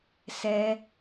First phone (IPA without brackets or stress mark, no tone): s